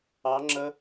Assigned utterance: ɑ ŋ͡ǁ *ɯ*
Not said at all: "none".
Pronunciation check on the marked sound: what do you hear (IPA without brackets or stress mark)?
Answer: ə